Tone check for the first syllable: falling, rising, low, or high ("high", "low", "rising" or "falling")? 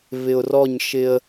low